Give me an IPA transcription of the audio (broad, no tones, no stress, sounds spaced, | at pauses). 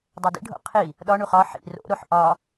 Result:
dˤ o d ḭ ɖʱ o̰ qʰ i | ɗ ɒ ɳ u χ ɒ ħ ḭ r o̰ ɾ o ħ ʔ ɒ